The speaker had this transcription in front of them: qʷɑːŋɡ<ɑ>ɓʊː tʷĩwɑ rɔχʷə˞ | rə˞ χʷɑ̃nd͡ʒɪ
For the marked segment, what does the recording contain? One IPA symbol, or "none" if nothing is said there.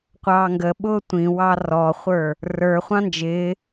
ə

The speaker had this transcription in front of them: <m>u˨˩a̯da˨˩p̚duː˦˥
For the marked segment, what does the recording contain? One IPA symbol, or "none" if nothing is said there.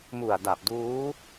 m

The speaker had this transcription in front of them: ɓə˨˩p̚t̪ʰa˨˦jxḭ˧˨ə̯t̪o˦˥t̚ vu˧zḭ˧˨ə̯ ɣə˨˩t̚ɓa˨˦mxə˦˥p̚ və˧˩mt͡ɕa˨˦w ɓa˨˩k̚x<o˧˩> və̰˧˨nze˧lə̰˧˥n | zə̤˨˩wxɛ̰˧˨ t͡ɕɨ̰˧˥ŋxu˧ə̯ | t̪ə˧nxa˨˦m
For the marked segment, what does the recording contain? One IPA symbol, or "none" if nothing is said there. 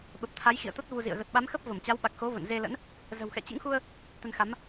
o˨˦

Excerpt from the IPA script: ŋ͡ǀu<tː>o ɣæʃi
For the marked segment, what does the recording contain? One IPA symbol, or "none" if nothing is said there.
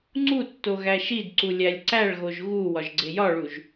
tː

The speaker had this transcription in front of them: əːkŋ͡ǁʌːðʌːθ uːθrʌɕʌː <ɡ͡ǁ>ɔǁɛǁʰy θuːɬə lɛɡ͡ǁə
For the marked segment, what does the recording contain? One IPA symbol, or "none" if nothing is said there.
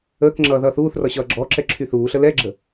ɡ͡ǁ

